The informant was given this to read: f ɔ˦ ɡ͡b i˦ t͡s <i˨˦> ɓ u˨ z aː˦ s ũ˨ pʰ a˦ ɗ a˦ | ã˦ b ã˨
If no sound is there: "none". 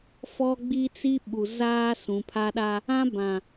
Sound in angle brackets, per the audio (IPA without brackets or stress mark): i˦